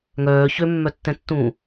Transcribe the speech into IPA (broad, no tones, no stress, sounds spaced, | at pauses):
ŋ œː ç ø mː œ tː ɛ̃ tː ũː